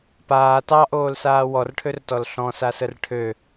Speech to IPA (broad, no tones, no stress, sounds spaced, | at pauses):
p aː t ɑ ʔ oː l s aː w ɔ r ʈʰ ø r t ɔ l ɬ ɔ̃ s a s ə r ʈʰ ø